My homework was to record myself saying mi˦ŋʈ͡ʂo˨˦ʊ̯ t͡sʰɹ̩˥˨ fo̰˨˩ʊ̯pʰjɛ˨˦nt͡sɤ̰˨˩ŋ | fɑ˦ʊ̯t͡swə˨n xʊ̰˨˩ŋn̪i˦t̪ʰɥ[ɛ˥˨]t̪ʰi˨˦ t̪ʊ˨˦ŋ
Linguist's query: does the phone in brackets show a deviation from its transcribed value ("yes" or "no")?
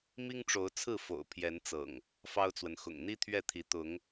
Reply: no